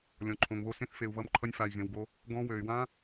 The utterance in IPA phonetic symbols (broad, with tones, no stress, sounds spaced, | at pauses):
lʲ ɔ̃˨ ǃʰ õ˨ ŋ β o˧ s ẽ˧ θ f e˨ u̯ β ʌ˧ m ǃʰ ʌ˧ nʲ f a˨ i̯ ɣ ẽ˨ w ɡ o˧ | ɡ ɔ̃˧ w ø˨ y̯ w ã˦